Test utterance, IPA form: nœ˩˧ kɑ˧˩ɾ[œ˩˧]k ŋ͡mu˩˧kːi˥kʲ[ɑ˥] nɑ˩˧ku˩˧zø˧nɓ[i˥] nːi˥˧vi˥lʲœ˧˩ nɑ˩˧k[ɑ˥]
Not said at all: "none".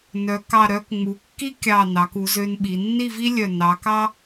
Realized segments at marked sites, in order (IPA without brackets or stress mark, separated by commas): œ˧, ɑ˧˩, i˩˧, ɑ˥